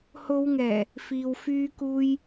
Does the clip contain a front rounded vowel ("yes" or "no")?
yes